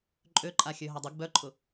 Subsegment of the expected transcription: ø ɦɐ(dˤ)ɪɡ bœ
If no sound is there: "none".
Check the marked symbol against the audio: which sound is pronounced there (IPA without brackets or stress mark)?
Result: dˤ